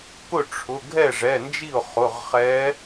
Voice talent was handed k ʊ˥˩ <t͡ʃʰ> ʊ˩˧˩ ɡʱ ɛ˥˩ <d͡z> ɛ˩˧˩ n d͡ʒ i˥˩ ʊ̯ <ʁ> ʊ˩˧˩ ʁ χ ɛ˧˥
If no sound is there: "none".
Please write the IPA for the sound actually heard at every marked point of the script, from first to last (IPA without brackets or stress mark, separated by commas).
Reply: ʈ͡ʂʰ, ʐ, χ